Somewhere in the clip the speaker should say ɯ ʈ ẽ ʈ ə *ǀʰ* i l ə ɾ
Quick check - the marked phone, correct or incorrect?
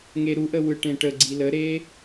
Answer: incorrect